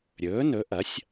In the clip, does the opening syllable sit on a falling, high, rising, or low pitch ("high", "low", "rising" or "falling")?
rising